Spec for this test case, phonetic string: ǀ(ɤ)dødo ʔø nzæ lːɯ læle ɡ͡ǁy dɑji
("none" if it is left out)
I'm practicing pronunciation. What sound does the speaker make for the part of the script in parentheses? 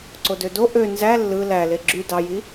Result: o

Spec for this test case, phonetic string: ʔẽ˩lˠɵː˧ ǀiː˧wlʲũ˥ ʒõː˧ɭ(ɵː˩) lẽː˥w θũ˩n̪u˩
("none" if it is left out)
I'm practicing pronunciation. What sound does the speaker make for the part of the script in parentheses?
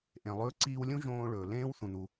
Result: ɵː˩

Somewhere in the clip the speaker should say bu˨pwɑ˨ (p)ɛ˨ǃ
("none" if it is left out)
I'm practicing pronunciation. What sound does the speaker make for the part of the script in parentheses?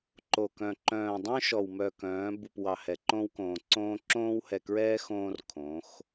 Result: h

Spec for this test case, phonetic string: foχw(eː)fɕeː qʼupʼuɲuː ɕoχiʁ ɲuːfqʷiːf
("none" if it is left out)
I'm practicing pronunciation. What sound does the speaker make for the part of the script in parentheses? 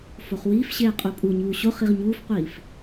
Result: iː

